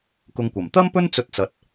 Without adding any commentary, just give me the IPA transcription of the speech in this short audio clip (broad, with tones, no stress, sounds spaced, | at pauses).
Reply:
k ʊ˧ ŋ kʷ ɐ˨˩ m t̪ ɐ˥ m p ɵ˥ n t͡s ɵ˧ t̚ t͡s ɐ˨˥ t̚